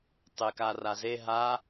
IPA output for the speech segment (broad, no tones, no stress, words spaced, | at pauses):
tˤekaraze ɦa